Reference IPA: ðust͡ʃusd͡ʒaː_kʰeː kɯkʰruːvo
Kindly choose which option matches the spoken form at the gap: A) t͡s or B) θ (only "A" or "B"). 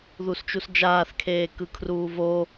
B